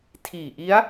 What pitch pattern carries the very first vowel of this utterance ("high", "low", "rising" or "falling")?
low